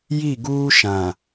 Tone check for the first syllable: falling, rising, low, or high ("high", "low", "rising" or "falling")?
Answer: falling